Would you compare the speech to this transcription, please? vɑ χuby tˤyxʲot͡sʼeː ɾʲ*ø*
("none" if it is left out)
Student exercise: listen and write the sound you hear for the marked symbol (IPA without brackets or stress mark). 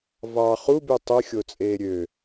ø